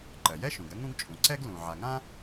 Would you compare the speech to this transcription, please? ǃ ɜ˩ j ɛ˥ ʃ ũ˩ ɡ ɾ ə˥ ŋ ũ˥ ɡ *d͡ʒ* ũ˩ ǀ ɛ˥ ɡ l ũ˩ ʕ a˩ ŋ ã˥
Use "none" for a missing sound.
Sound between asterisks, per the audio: t͡ʃʼ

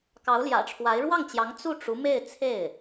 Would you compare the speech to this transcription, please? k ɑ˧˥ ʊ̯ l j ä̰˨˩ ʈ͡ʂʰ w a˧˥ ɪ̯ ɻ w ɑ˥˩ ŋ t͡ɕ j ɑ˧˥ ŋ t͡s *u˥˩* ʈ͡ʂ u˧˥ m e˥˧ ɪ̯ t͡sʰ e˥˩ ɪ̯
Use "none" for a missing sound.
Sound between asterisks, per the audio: u˥˩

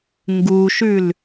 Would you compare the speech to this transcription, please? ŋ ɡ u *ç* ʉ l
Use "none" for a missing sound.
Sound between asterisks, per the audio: ʃ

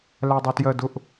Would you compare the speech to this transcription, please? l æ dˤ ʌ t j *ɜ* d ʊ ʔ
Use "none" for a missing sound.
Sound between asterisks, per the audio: ɜ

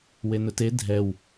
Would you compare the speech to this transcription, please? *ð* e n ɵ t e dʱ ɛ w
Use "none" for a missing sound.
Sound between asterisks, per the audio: w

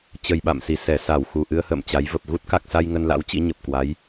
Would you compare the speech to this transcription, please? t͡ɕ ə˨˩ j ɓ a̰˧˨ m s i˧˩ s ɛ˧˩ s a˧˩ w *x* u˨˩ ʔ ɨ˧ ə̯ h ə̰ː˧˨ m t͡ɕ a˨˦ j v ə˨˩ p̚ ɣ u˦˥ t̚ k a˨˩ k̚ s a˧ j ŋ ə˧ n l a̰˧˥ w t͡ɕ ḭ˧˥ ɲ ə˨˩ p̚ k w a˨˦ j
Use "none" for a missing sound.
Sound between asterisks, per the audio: x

